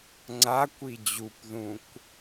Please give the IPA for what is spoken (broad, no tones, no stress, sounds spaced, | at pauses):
ŋ͡ǀ a kʷ i d͡ʑ u p ð ũ kʷ